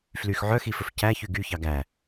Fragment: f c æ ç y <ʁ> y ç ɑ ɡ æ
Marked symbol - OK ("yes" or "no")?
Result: no